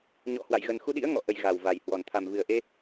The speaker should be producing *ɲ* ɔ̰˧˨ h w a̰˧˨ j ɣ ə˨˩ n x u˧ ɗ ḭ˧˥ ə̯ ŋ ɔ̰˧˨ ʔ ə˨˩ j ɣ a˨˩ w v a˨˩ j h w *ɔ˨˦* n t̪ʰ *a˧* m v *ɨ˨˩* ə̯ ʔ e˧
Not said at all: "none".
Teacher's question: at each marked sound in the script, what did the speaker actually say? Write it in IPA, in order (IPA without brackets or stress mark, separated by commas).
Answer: ɲ, ɔ˨˩, a˨˩, ɨ˨˩